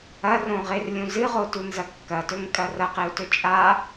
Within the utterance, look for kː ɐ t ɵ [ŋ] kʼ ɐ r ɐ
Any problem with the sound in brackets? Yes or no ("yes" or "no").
no